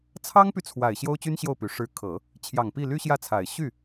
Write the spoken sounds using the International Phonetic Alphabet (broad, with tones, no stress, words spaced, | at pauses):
t͡sʰɑ˥ŋpy˨ t͡sʰwa˨˩ɪ̯ ɕjo˥ʊ̯t͡ɕy˥nɕjo˥˩ʊ̯py˨˩ ʂɻ̩˧˥kʰɤ˨˩˦ | t͡ɕʰjɑ˨˩ŋpi˥˩ ly˥ɕjä˥˩t͡sʰa˨˩ɪ̯ ɕy˥˩